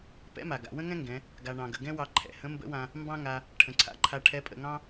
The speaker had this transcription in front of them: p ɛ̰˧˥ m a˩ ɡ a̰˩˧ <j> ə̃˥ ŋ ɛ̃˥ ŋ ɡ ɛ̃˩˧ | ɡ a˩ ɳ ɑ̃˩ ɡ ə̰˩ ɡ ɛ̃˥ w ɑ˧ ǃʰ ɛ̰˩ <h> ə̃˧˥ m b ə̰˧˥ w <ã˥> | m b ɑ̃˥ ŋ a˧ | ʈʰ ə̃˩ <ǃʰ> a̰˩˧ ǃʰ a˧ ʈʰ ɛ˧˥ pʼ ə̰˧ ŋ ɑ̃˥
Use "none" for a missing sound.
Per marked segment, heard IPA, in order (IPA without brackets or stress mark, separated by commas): w, h, ã˧, ǀʰ